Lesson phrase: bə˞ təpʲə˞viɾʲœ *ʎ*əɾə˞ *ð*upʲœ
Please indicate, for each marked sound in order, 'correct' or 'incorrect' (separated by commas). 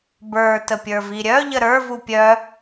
correct, incorrect